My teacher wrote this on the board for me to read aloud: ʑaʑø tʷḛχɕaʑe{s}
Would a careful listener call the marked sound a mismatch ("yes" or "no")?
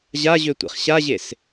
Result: no